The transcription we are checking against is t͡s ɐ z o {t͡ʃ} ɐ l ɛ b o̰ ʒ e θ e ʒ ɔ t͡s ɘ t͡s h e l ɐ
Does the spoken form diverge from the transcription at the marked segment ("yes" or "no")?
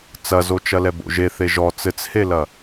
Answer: no